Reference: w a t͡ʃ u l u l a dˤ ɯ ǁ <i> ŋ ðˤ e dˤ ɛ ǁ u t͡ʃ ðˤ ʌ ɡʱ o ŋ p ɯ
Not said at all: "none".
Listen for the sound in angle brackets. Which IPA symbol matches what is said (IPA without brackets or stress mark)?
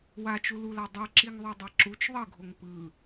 i